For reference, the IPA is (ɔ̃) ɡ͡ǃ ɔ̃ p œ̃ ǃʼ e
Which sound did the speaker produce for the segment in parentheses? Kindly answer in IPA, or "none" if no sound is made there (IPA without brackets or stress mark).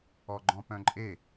ɔ